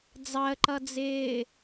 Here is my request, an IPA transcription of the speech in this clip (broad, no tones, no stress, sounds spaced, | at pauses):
d͡z ɑ ə̯ ǃ ʌ d͡z ɪː